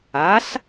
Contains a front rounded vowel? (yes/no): no